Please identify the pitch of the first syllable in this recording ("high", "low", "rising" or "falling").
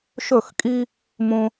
falling